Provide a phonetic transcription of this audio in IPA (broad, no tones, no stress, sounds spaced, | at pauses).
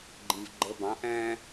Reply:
ɡ͡ǃ ĩ v ɡ͡ǃ ə b ɑ̃ ʔ æ̃